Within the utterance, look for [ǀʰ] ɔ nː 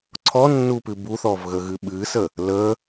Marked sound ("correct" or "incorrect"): correct